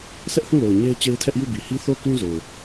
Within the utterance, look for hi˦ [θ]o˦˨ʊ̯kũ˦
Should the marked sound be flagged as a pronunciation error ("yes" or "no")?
no